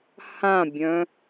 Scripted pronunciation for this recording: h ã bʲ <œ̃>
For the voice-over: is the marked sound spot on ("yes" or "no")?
yes